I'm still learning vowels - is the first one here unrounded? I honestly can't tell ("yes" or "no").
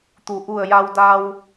no